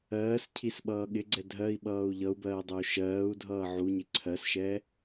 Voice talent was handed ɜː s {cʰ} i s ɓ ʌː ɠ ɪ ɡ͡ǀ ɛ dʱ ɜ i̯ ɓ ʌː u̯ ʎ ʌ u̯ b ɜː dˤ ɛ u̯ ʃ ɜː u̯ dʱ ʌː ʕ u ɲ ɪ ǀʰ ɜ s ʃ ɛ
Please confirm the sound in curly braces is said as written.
yes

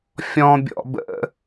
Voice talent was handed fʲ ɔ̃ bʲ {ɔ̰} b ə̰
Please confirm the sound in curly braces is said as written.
yes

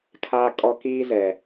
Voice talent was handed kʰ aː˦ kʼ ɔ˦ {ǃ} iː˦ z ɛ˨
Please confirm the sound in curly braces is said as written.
no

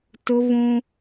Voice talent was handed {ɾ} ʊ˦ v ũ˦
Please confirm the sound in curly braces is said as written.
no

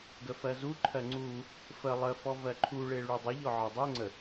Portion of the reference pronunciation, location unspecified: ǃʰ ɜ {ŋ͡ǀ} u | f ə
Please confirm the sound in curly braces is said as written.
yes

